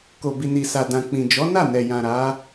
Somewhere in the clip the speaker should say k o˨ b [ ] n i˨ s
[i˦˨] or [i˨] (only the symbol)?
i˨